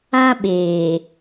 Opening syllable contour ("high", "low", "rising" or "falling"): high